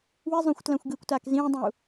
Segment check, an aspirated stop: absent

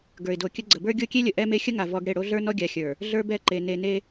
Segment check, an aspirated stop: absent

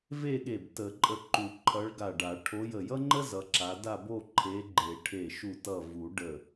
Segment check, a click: present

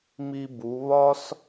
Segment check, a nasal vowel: absent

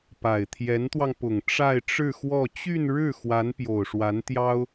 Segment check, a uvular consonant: absent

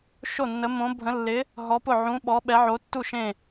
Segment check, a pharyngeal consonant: present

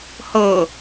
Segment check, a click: absent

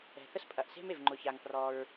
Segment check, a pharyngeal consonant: absent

